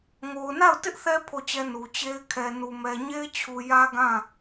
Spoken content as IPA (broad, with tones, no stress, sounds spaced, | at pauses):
ŋ o˨ ʊ̯ n a˦˨ ʊ̯ t ɪ˦ ʔ θ ɛ˦ pʰ o˦˨ t͡ɕ ɛ˦ n u˨ t͡ɕ e˦ ɪ̯ kʰ ɛ˨ n u˨ m ɛ˨ ɲ e˦ ɪ̯ t͡ɕʰ u˨ j ä˦ ɡ ã˦˨